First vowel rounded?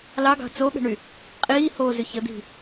no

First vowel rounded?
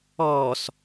yes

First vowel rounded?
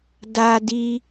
no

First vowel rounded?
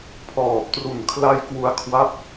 yes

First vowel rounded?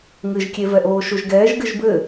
no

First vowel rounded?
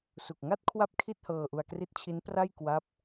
yes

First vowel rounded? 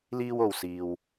no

